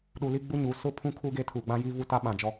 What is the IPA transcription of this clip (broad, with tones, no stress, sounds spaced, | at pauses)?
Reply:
ɗ u˨ l i˦ ɡ͡b u˦ ɲ u˨ s ʊ˦˨ pʰ ũ˦ kʰ uː˦ ɡ e˦ tʰ uː˨ ɡ͡b ã˦ j i˦ v u˦ t a˦ ɓ ã˨ d͡ʒ ɔ˦